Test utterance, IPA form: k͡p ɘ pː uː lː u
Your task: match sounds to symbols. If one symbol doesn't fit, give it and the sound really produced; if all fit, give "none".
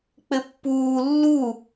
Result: none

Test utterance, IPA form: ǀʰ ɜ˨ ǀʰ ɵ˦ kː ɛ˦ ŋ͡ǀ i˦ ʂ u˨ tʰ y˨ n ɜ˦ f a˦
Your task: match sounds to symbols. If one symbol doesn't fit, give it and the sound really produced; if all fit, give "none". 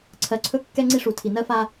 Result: y˨ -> i˨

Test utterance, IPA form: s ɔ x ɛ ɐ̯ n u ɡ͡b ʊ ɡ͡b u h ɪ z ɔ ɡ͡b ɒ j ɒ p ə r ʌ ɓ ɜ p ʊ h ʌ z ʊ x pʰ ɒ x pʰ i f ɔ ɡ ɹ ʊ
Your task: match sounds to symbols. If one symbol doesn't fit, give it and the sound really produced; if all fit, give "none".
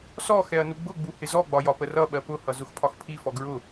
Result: none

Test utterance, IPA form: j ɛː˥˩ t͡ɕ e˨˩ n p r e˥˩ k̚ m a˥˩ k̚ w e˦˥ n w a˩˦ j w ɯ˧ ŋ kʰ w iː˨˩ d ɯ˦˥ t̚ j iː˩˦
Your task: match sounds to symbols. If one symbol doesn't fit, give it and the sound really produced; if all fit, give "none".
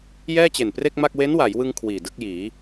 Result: t̚ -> k̚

